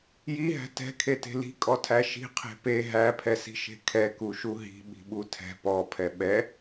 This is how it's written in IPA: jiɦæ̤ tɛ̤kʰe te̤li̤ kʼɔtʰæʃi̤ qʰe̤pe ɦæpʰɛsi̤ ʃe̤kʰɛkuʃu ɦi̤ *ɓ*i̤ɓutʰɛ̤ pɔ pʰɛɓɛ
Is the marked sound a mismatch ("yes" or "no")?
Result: no